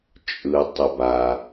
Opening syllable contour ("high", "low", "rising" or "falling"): low